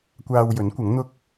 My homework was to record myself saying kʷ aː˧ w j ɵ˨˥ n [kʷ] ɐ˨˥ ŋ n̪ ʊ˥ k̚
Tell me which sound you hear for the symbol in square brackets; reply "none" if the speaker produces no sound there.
kʷ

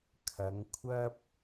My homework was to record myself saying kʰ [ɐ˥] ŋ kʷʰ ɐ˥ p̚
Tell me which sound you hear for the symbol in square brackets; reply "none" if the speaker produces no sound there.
ɐ˨˧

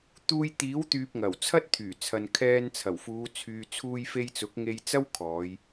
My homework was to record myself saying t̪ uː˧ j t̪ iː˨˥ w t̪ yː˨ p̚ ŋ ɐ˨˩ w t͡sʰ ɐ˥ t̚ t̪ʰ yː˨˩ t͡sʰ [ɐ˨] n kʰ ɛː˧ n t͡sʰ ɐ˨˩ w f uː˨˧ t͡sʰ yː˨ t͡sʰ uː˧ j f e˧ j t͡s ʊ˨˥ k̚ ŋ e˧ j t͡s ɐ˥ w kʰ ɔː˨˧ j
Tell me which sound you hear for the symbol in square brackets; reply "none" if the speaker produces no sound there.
ɐ˨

